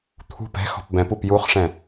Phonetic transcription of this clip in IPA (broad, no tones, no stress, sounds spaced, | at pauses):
t̪ʰ ṳ p ɛ̤ x ɔ̤ p b ɛ̃ p u p j u χ ʂ ɛ̃